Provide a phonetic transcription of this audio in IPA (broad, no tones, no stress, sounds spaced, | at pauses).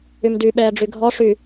y m d y ɓ ɛː ɖ͡ʐ y ɡʱ ɔ ʂ y